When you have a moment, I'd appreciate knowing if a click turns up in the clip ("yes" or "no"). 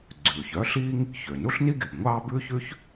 yes